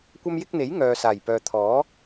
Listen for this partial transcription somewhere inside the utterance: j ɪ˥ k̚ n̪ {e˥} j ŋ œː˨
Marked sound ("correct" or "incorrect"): incorrect